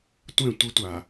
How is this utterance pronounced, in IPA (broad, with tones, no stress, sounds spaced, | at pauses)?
tʷ ɛ̃˦˨ tʷ e˦ tʷ a˨